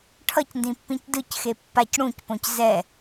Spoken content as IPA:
ʈʰ ʌ c n d ĩ pː ĩ c d ɯ c x e pː a c ɽ ũ c p õ c z ɛ

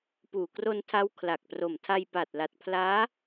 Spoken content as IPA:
p uː˨˩ k r o˧ n tʰ a˦˥ w kʰ l a˨˩ k̚ p r o˨˩ m tʰ a˧ j p a˨˩ t̚ l a˨˩ t̚ pʰ l aː˦˥

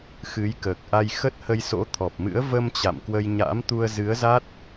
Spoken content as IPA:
x ɨ˨˦ j k əː˨˩ k̚ ʔ a˧ j x ə˦˥ t̚ h ə˧ j s o̰˧˥ t̪ʰ ɔ˨˩ p̚ m ɨ̰˧˥ ə̯ v ə˧ m t͡ɕ a̰˧˨ m k w ə˧ j ɲ a̰˧˥ m t̪ u˧ ə̯ z ɨ˨˦ ə̯ z a˦˥ t̚

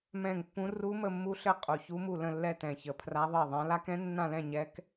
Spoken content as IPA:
m ɛ̃˥˧ ŋ pː ũ˦˥ r u˦˥ m ə˥˧ mː u˦˥ ɬ ɘ˥˧ qʼ u˥˧ ç u˦˥ m u˥˧ l ə̃˥˧ lː ɛ˥˧ t ɛ̃˥˧ ç ə˦˥ pʰ r a˦˥ ðˤ ə˥˧ i̯ ðˤ ã˦˥ l a˦˥ k ɛ̃˦˥ nː ã˥˧ l ɛ̃˥˧ ɲ ɛ˦˥ k

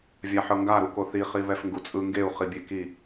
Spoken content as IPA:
vʲ a ħ ɤ ŋ ɡ a ɾ u k o θ i χ i β ɛ f ŋ ɡ u t͡sʼ ɯ ŋ ɡ e u̯ χ i bʲ e k i

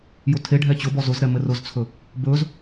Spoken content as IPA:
j ʊ tʰ e ɖʱ ɛ t͡ɕ ʊ b ɔ z ʊ z ɾ ɛ m ɘ r ʊ z t͡sʰ ɵ | b ɵ z

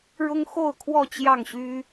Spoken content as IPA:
ɻ ʊ˦ ŋ x o˥˨ ʊ̯ kʰ w ɔ˥˨ t͡ɕ j ɑ˥˨ ŋ ɕ y˦

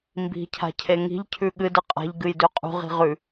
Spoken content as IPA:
m b i̤ cʰ a̤ cʰ e ŋ i̤ ʎ cʰ ʉ ɠ ɨ d ɨ qʼ a̤ ʎ ɡ ɨ j d ʉ qʼ ṳ ʁ i̤ ʁ ʉ

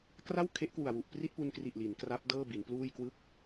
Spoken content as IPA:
k r a˥˩ w kʰ e˦˥ ʔ k w u˨˩ a̯ w u˨˩ ʔ p r i˥˩ t̚ p u˧ n k r i˨˩ ʔ l i˩˦ n k r a˦˥ p̚ d ɤː˥˩ b i˩˦ n p l uː˥˩ j k w ɯ˥˩ k̚

